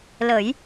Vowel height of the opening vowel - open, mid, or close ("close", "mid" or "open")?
mid